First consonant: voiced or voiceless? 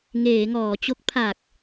voiced